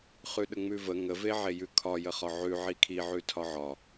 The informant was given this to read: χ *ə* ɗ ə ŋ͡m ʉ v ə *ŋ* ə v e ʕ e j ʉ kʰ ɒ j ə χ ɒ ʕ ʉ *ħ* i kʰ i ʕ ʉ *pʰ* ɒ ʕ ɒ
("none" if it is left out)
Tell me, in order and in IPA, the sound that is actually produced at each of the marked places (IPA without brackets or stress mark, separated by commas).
ʉ, ŋ, ʕ, tʰ